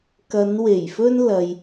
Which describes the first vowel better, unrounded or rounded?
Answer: unrounded